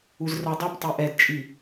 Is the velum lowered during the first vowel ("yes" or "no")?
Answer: no